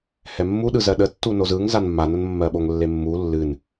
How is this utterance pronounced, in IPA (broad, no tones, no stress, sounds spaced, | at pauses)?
h ɛ mː u ɗ ɯ z ɜ ɗ ə tː u n o z ɯ ŋ z a n mː a n ə n mː ɜ ɓ o ŋ lː e mː u lː ɨ n